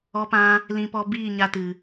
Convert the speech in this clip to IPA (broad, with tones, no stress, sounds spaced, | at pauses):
ɔ˧ p ã˧ | l ĩ˧ p ɔ˧ b iː˦˨ ɲ a˧ t ɨ˨